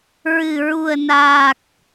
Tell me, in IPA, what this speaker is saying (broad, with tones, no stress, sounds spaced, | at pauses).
ɹ ɨ˨˩ ɹ u˨˩ ə̯ n aː˨˩ k̚